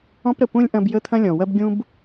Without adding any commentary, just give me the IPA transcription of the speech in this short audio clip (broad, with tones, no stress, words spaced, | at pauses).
ɔ̃˦pɾə˨ pũ˥lʲʔɐ̃˦b jə˥t̪ʰɐ̃˥lʲɔ̃˨wɐ˥b ɡʲũ˥b